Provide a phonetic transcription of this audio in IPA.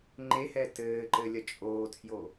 ŋ͡ǃ e h ɛ t ɘː ǃ ɘ lʲ ɐ t͡ʃʼ oː tʰ j o

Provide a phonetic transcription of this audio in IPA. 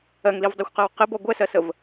ɜ ŋ l i v dˤ ɜ xʷ q ɜ w q ɪ b ɔ ɡʷ ɛ s ɜ s ə v

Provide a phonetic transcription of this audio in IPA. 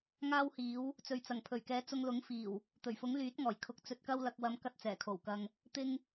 ŋ aː˥ w h iː˨˥ w | t͡s ɵ˨ ɥ t͡s ɐ˨˩ ŋ pʰ ɵ˨˩ ɥ k ɛː˨˧ t͡s ʊ˧ ŋ l ʊ˨˥ ŋ f iː˨˩ w | t̪ ɵ˨˩ ɥ f ʊ˨˥ ŋ l yː˨˥ t̚ ŋ ɔː˨˩ j kʰ ʊ˧ k̚ t͡s ɵ˧ t̚ k ɐ˥ w l ɐ˧ k̚ w ɐ˧ m k ɐ˥ t̚ t͡s ɛː˨˩ kʰ o˨˩ w k ɐ˧ ŋ | t̪ ɪ˥ ŋ

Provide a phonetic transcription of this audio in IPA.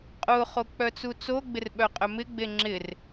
qʼ ʊ χ o k͡p œ t͡s u t͡s o ɡ͡b ɪ r ɓ œ qʼ œ m ɪ ɡ͡b e ŋ͡ǁ ɪ r

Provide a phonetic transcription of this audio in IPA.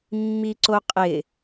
mː i ǀ o qʼ ɪ

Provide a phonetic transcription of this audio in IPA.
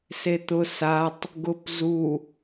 s e t̪ ʊ s a tˤ | ɡ ʊ p z u

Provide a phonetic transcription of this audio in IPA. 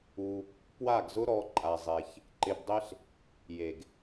u˧ | p w a˦˨ ɡ z ʊ˦ ɾ ɔ˧ ǃʼ a˧ zˤ e˧ ç | ǃ ɪ˧ b dˤ e˦ ɬ | j e˨ ɡ

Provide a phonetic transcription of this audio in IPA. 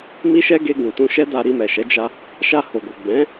m i˦ ʃ ɛ˦ ɡ e˧ ɡ ũ˨ t ũ˧ ʃ ɛ˦ d a˧ ɾ i˧ m ɛ˨ ʃ ɛ˨˦ d͡ʒ a˧ | ʃ a˧ h o˨ ɡ o˨ ɡ͡b ɛ̃˨˦

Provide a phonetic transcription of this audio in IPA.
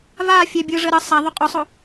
v a fʲ ɛ bʲ ɯ ʐ ə ɾ ə sˤ a ðˤ o qʼ o sˤ o

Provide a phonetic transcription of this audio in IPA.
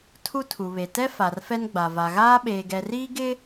tʰ u˦ tʰ u˨ β e˨ t ɛ˦ f a˨ r f ɛ˦ n ɡ͡b a˨ v a˨ ɣ aː˦ ɓ eː˨ ɡ ɛ˨ r iː˦ ɡ ɪ˦

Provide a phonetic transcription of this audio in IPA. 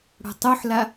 ɽ o̤ tˤ o ħ l a

